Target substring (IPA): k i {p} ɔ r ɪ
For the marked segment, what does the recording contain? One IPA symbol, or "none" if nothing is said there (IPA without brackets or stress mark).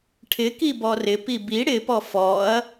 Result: b